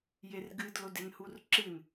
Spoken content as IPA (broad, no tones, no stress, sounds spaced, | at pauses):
j e r ɡ ɨ d l o d e n h u r ǁ ɨ n